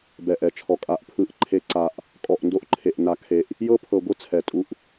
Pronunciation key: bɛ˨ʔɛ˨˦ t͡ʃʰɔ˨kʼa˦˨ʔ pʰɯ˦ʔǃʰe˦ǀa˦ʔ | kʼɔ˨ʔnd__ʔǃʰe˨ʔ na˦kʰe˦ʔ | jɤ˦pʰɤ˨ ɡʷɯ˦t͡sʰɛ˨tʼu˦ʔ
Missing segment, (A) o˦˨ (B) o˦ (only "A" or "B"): B